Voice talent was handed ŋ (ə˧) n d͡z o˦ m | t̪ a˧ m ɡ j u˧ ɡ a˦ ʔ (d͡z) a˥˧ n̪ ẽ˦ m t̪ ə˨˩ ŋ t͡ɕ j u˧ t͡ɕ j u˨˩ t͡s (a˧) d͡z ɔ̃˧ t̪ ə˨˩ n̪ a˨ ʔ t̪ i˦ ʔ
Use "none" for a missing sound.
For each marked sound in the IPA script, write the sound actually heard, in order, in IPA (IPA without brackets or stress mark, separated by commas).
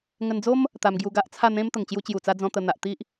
ə˧, t͡sʰ, a˧